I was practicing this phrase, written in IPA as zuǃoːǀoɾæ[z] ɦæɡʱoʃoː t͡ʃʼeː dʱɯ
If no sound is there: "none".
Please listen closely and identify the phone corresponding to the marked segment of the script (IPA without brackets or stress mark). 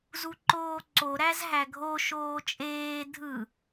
z